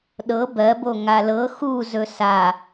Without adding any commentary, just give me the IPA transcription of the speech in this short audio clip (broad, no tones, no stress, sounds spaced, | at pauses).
ɗ ɤ b ɜ b o ŋ a l ɤ x u z ɵ s a